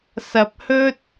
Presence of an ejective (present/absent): absent